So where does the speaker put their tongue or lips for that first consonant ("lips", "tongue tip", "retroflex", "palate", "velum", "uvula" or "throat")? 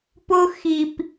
lips